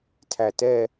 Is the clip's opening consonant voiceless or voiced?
voiceless